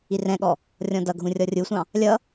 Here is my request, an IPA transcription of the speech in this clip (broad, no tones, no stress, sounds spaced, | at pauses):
i r ɛ̃ ɠ ɔ | rʲ ɔ̃ d ʌ ɡʱ ũ rʲ ɔ rʲ u sʷ ɑ̃ | lʲ ʌ